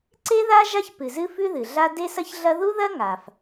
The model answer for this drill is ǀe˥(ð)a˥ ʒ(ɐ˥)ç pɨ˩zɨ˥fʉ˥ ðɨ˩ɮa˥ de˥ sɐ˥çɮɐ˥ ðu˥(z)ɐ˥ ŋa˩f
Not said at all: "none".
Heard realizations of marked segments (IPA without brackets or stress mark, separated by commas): ð, a˥, ð